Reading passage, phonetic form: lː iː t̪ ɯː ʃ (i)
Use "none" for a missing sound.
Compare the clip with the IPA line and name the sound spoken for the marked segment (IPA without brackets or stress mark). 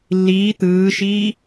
iː